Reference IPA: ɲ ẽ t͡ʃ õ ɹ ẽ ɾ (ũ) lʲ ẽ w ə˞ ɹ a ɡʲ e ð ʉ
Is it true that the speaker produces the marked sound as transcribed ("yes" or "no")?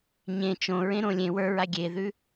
no